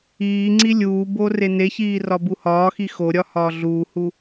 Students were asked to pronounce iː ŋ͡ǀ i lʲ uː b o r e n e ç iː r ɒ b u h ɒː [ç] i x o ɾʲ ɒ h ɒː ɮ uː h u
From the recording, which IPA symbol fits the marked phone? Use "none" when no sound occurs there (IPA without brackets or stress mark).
x